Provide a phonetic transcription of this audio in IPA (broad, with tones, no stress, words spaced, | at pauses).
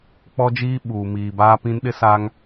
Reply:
k͡pɔ˦d͡ʒiː˦ ɓuː˨ miː˨baː˦pĩ˦nɗɪ˦ saː˦ŋ